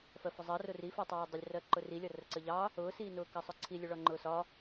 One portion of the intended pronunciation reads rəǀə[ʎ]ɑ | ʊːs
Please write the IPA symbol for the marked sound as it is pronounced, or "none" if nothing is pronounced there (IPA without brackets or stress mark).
ʎ